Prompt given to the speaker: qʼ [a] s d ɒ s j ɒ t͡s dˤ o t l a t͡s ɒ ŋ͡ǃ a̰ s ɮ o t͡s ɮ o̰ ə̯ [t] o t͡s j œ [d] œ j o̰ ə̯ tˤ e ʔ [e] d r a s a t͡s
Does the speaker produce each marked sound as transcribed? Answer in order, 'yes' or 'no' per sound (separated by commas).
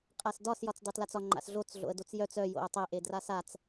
yes, no, no, yes